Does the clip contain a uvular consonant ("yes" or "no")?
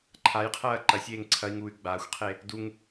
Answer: yes